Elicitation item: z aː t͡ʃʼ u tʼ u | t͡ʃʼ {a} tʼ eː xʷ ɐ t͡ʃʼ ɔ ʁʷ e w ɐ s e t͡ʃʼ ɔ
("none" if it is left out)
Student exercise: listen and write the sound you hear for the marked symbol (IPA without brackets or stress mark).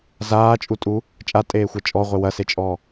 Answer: a